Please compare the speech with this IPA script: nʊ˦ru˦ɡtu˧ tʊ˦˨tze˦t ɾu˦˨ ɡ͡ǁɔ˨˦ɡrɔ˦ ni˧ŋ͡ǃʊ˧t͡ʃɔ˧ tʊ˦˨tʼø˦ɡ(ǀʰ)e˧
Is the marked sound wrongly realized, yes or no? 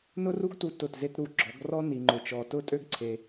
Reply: no